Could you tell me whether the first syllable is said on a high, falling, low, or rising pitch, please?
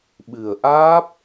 low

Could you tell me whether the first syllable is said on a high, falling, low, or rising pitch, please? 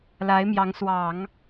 rising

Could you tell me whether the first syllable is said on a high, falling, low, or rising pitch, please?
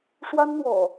high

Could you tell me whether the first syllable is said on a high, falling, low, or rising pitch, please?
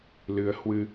rising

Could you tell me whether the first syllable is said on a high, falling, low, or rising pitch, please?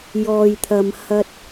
low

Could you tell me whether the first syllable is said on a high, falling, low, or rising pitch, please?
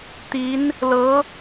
rising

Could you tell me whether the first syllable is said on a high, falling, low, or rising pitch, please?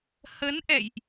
rising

